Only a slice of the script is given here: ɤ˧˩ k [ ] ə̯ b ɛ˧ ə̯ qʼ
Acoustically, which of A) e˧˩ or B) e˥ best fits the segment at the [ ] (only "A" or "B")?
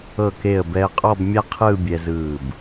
A